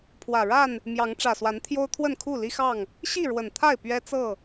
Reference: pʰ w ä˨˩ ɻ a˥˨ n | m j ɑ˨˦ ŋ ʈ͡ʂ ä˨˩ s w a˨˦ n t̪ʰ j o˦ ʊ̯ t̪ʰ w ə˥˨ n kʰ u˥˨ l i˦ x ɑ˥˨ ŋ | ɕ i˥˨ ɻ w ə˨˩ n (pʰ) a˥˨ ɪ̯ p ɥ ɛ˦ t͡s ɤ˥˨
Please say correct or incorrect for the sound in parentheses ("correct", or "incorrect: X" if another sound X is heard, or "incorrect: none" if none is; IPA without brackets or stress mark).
incorrect: t̪ʰ